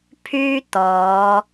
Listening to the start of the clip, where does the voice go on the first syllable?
high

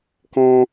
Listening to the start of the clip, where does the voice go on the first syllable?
high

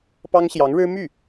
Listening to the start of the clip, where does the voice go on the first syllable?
high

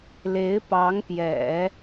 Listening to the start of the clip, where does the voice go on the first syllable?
rising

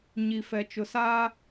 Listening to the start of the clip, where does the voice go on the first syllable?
low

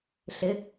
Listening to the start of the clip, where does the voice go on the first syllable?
rising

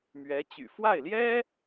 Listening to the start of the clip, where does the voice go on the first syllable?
rising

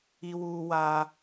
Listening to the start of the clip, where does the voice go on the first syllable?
high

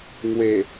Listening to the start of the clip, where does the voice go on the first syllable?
low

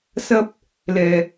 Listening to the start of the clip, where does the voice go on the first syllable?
high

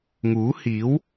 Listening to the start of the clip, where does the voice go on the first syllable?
rising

